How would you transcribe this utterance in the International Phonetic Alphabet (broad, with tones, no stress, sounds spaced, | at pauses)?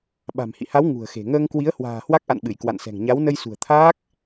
ɓ a̤˨˩ m h ḭ˧˨ h a˨˦ w ŋ ṳ˨˩ ə̯ x e̤˨˩ ŋ əː˧ ŋ k w i˨˦ ə̯ h w a̤ː˨˩ h w a˦˥ k̚ ʔ a̰˧˨ n ɓ ɨ˧˩ j k w a̰˧˨ n s ɛ̤˨˩ ŋ ɲ a˨˦ w n ə˧ j s ṳ˨˩ ə̯ t̪ʰ aː˦˥ k̚